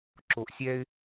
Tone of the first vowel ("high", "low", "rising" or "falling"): low